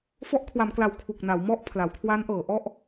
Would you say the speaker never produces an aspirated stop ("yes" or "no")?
no